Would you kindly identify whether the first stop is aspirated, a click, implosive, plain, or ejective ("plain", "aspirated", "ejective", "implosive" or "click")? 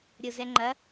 click